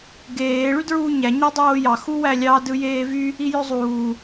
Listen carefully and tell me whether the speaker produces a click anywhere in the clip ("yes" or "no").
no